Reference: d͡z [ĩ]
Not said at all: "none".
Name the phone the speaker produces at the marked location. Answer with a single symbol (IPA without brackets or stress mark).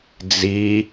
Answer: i